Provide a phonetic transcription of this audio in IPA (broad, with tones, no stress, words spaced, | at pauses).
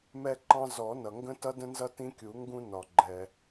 mɛ˦ǃɑ̃˦ zɔ˨˩˦nʌ˩ŋɡə̃˦ tʌ˦də̃˦nzʌ˦ tĩ˦kʲu˨˩˦ŋɡũ˦ nɒ˩ɡ͡ǃɛ˩